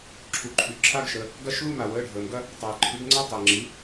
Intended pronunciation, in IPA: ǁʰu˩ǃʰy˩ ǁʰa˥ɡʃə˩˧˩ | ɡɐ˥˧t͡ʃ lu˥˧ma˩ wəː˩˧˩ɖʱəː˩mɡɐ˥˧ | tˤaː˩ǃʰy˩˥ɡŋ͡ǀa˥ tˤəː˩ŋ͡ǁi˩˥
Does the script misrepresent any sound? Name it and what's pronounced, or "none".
t͡ʃ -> ʃ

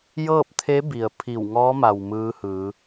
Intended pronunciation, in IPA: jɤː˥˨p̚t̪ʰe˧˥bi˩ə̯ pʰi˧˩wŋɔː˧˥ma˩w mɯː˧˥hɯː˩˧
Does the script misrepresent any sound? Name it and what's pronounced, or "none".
none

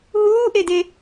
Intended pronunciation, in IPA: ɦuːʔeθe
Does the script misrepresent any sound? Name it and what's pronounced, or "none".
θ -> d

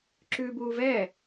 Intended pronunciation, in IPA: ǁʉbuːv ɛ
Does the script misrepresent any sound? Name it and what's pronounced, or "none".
none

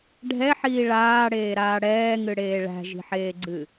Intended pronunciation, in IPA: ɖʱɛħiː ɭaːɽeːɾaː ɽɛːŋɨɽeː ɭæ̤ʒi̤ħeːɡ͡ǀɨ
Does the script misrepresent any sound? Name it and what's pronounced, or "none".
none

